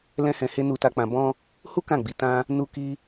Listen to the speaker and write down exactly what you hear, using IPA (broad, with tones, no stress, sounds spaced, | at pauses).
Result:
l ɛ̃˦ h ɛ̃˧ h e˦ n u˧ t a˧ k͡p ã˧ b ɔ̃˧ | h u˦ k ã˦˨ ɡ͡b i˨˦ t ã˦ | n u˦ k i˦